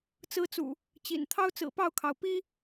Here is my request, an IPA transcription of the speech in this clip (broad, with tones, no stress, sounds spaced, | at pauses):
t͡s ɹ̩˦ t͡s ṵ˨˩ | t͡ɕ ḭ˨˩ n t̪ʰ ɑ˦ ʊ̯ t͡s ɹ̩˨˩ p ɑ˥˨ ʊ̯ kʰ ɑ˩ ʊ̯ p i˦